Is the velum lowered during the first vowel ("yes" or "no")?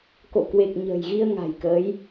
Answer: no